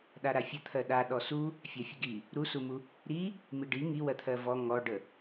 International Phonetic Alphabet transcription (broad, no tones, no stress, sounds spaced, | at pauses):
ɗ a ɾ a fʲ ə t̪ʰ ɜ ɗ a ɗ ɔ s u | fʲ a fʲ ə ɡ i | ɾ u s u m u | ɾ i | m i ɖ i ŋ i w ɜ t̪ʰ ɜ v ɔ ŋ ɔ ɖ ə